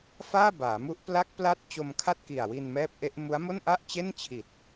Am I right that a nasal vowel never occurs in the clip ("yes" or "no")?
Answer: yes